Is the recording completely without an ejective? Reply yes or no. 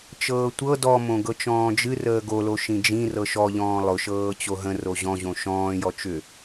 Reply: yes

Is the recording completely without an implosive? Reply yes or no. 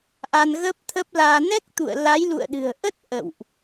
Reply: no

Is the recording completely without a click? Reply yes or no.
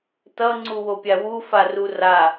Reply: no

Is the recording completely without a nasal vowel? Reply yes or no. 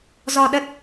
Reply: yes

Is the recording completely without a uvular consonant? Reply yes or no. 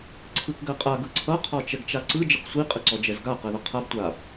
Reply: no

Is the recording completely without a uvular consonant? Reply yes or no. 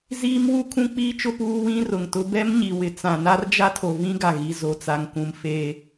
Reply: yes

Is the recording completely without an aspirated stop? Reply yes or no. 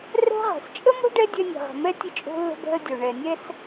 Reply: yes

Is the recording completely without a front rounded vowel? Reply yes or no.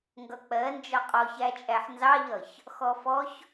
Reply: yes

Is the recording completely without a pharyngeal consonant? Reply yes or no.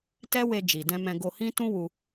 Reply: yes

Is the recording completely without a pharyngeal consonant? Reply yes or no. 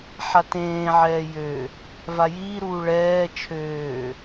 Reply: no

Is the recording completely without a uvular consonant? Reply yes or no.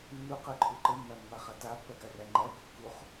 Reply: no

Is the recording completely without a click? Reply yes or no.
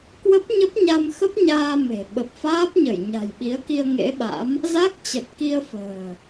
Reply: yes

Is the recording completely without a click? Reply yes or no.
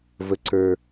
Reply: no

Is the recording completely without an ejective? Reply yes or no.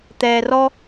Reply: yes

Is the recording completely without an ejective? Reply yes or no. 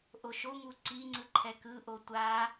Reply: yes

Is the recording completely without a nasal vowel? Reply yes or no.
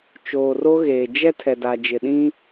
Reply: no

